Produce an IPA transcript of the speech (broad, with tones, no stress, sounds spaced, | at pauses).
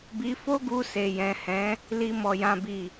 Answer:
b i˧ f o˦ ɡ u˧ s e˨ j ɛ̃˨ h ɛ̃˨˦ | l i˧ m ɔ˧ j ã˦ b i˦˨